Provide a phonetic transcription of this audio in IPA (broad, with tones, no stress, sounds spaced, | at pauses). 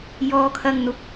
j ɔː˥ kʰ ɐ˥ ŋ n̪ ʊ˧ k̚